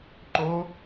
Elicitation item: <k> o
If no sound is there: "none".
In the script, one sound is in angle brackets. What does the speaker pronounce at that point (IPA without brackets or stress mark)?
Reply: ǃ